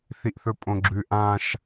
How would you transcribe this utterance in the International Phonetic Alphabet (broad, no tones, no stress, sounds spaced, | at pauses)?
θ i ʔ θ ɵ pʼ õ ɡ͡ǁ ʉ ʔ ã ʃ